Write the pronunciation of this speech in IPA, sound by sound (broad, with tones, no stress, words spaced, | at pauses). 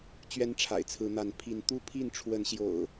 t͡ɕɥɛ˦nʈ͡ʂʰa̰˨˩ɪ̯t͡sʰɹ̩˨˦n̪a˨˦n pʰi˨˦nt̪u˦pʰi˥˨n ʈ͡ʂʰwə˨˦nɕjo̰˨˩ʊ̯